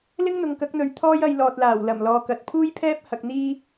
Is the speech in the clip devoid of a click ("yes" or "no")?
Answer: yes